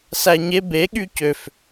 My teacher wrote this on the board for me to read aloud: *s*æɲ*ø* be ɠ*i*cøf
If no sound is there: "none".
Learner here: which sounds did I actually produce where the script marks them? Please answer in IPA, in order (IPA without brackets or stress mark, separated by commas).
s, e, y